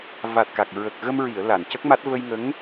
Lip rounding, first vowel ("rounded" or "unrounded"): unrounded